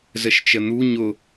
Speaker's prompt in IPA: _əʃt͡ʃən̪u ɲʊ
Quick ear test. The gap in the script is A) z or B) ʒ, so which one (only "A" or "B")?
A